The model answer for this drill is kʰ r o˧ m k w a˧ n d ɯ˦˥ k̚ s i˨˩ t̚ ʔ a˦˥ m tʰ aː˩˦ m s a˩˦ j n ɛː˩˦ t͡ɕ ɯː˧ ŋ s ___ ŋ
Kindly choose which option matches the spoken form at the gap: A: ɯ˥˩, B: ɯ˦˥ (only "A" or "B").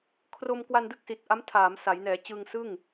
A